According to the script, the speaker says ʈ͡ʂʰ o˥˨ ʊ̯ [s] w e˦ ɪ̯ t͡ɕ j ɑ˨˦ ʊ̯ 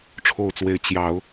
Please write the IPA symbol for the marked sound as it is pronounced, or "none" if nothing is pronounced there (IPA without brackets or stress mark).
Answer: t͡s